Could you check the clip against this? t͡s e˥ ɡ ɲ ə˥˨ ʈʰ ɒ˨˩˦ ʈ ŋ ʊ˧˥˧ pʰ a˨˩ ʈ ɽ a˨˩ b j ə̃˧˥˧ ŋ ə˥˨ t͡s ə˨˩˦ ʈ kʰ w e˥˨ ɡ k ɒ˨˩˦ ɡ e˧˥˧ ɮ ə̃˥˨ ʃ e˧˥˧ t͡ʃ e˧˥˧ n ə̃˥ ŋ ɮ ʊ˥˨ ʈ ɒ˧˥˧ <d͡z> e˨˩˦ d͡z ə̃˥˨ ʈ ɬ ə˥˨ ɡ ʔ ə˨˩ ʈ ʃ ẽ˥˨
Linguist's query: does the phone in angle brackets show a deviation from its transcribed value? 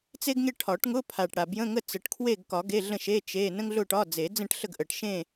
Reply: no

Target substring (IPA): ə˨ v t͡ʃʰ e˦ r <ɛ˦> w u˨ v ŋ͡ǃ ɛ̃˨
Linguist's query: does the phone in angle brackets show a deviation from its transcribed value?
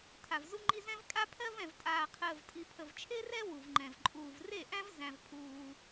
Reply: no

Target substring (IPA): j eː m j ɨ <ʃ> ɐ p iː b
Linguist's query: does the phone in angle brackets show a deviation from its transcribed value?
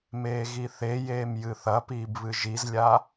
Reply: yes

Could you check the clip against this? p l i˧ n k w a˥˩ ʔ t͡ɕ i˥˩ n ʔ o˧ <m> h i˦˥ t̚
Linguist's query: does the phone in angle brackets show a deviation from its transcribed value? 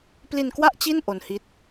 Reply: yes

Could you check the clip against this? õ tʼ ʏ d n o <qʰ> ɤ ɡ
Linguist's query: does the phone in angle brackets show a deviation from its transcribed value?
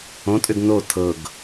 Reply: yes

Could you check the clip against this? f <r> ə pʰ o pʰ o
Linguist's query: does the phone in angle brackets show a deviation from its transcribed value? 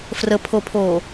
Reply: no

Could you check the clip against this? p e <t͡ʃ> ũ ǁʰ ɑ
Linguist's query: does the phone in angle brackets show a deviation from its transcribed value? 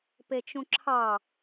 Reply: no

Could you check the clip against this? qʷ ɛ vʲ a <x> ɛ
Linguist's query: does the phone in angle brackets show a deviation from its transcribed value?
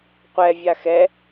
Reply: no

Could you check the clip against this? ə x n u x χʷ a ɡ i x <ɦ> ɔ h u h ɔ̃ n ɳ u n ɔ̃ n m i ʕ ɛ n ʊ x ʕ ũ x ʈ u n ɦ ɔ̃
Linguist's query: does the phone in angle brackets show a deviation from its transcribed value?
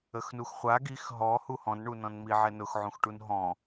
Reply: no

